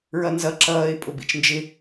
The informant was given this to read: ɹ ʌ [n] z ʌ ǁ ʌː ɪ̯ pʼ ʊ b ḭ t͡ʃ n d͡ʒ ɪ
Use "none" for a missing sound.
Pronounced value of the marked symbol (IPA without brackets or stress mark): n